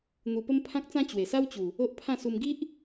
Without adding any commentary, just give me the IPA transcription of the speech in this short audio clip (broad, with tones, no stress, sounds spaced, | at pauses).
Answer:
n̪ u˧ p ə˦ m pʰ ã˦ k̚ t͡s ã˦ t͡ɕ w e˨˩ s a˦ w t͡ɕ u˨˩ | o˦ ʔ pʰ ã˥˧ s u˧ m ɡ i˦ ʔ